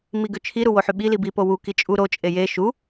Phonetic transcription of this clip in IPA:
miɡøt͡ʃʰiɾu woħyɓili bipo wuki t͡ʃʼu ɾot͡ʃʼe je ʃu

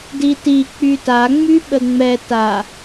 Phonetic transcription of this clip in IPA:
diti k͡pyta ŋ͡myɓəŋ͡mɛ ta

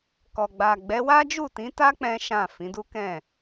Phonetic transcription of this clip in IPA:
kɔ˨ɡ͡ba˨ɡ͡bɛ˨˦wa˦ d͡ʒu˦˨tĩ˨˦ta˦ k͡pɛ̃˦ʃã˦˨ fĩ˨˦du˦kɛ̃˦˨

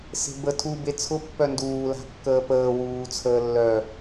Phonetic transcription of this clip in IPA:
se̤bə tʰube t͡sʰʊpːœ nduːla̤kːəː pəː wuːt͡sʰəːlːœ

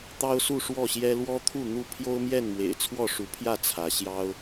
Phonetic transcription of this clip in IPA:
t̪ɑ˦ʊ̯su˥˨ʂwɔ˥˨ɕjɛ˦ lwɔ˦t̪ʰu˥˨ n̪u˥˨ pʰjo˦ʊ̯mjɛ˥˨nmwḛ˨˩ɪ̯ t͡sʰwɔ˥˨ʂu˨˦pʰjä˥˨ t͡sʰä˨˦ɕjɑ˦ʊ̯

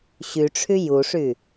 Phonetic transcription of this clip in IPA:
ɕyʈ͡ʂʰy juʂy

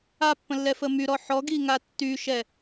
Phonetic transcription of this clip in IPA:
apːə̃lːɛfə myɾɔ ħɔɡiŋa tːyʃɛ

